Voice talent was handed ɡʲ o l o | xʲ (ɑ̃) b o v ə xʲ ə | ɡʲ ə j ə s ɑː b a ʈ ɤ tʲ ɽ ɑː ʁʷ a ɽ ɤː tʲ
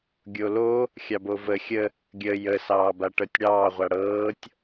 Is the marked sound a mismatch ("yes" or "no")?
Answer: yes